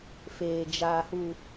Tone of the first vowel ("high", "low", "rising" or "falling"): low